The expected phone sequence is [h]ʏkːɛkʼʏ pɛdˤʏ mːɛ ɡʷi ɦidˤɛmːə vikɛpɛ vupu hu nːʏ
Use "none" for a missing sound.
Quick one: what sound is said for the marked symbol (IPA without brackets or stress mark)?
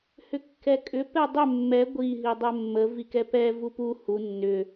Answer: h